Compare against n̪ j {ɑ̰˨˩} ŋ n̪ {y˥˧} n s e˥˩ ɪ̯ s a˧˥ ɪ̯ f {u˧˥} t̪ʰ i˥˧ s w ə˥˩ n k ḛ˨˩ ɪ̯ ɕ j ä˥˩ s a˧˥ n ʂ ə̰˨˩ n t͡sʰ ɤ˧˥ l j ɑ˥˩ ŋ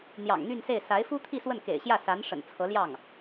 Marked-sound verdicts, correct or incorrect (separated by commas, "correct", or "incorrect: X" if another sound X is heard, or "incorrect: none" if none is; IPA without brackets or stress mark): correct, correct, incorrect: u˥